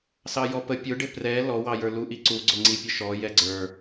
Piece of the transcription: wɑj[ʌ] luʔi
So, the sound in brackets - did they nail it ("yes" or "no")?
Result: no